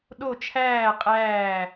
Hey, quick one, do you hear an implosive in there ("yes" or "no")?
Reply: yes